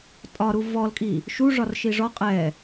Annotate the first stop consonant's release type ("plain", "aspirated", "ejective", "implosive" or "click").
ejective